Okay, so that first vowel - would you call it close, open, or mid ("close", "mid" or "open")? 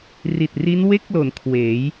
close